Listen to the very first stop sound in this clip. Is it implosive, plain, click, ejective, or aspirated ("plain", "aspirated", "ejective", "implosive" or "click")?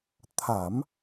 aspirated